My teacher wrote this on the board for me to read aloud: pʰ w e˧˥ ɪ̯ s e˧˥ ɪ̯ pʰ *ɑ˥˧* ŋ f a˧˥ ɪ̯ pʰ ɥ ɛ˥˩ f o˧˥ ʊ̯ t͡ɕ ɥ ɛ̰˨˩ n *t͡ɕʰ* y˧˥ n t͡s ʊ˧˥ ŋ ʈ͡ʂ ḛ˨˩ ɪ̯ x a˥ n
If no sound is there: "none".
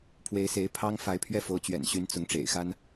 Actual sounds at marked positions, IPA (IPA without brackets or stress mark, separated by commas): ɑ˥, ɕ